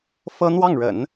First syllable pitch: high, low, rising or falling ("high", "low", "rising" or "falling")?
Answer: high